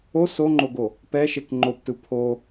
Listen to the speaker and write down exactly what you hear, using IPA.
o s o ŋ͡ǃ o ɡ o | p ɛ ʃ e k ŋ͡ǃ o p t ɯ pʰ o

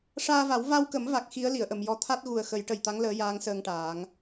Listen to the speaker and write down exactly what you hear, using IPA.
ʂ aː˧ v a˨˩˦ w v a˧ w k ə˨˩˦ m v a˨˩ k̚ x i˧˥ ə̯ l i˨˩˨ ə̯ ʔ ə˨˩˨ m j ɔ˧˥ t̪ʰ a˦˥ t̚ ɣ u˨˩ ə̯ x ə˨˩˦ j ʈ ə˨˩ j t̪ a˧˥ ŋ l əː˧˥ j aː˧˥ ŋ s əː˧ ŋ ʈ aː˨˩˦ ŋ

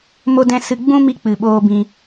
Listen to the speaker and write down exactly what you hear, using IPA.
m o˦ d ɛ̃˦ s ɨ˧ ɡ͡b ũ˦ m i˧ k͡p ɨ˨ ɓ oː˧ b ĩ˧

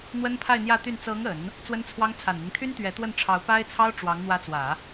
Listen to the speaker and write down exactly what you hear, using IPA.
n̪ w ə˥ n pʰ a˥˧ ɪ̯ n̪ j ä˥˧ t̪ y˥˩ n t͡s ɤ˧˥ ŋ ə˨˩˦ n | t͡s w ə˥ n t͡sʰ w ɑ˥ ŋ t͡sʰ a˨˩ n n̪ i˦ ŋ t̪ʰ y˥ n t̪ ɥ ɛ˧˥ t̪ w ə˥˩ n ʈ͡ʂʰ ɑ˧˥ ʊ̯ p a˥ ɪ̯ t͡sʰ ɑ˥ ʊ̯ ʈ͡ʂ w ɑ˧˥ ŋ n̪ w ä˧˥ t͡s w ä˨˩˦

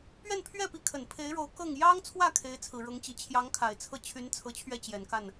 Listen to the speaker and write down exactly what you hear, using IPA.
p ɥ ɛ˥˧ n pʰ ɥ ɛ˥˩ p i˧˥ kʰ ə˨˩ n pʰ e˧˥ ɪ̯ ɻ o˧˥ ʊ̯ k ɤ˥˩ ŋ j ɑ˥ ŋ t͡sʰ w ä˥˩ kʰ e˧˥ ɪ̯ t͡sʰ ɹ̩˨˩ ɻ ɤ˧˥ ŋ t͡ɕ i˨˩ t͡ɕʰ j ɑ˧˥ ŋ kʰ a˨˩ ɪ̯ t͡sʰ ɤ˥ t͡ɕʰ y˧˥ n t͡sʰ ɤ˧˥ t͡ɕʰ ɥ ɛ˥˩ t͡ɕ j ɛ˨˩ n k a˥˩ n

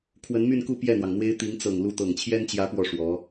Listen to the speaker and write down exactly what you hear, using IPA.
kʰ w ə˧˥ n m y˥˧ n k u˥˧ p j ɛ˥˩ n̪ w ɑ˩ ŋ n̪ w e˥ ɪ̯ t̪ i˧˥ ŋ t͡s ɤ˨˩ ŋ l u˥˩ t̪ ɤ˨˩ ŋ t͡ɕʰ j ɛ˥ n t͡ɕ j ä˧˥ p w ɔ˥˩ ʂ w ɔ˧˥

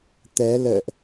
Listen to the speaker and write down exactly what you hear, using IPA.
t̪ ɛ˨˦ l ə̰ː˧˨ ʔ

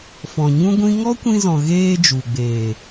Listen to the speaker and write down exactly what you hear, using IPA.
f ɔ̃˨ ɲ ũ˦ ɡʷ ĩ˦ ŋ ɔ˦ kʷ ĩ˧ z ɔ̃˨ ɣ eː˧ d͡ʒ u˨ ɡ͡b eː˨

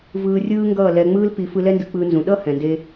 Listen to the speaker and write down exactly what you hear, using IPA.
v ɯː˧ rʲ ɯː˦ ŋ ɡ ʌː˦˨ l ɛ˧ ŋ͡m ɯː˦ l p i˧ f ɯ˧ l ɛ˦ n d ɯ˧ k͡p ɯː˧ n z ũ˨ ɗ ʌ˦ h ɛ̃˨ n d e˧

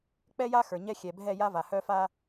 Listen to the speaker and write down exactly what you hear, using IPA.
k͡p ɛ˦ j a˦ x ə˞˨ ɲ ɛ˦ xʲ ɛ˨ bʱ ɛ˦˨ j a˦ v a˨ h œ˦ f a˦

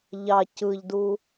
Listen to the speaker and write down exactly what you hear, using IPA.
ʎ ɑ c ɯ ʎ d u

